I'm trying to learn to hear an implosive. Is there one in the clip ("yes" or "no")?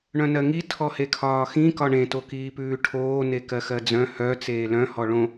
no